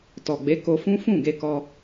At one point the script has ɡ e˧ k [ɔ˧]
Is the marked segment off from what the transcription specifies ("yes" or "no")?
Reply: no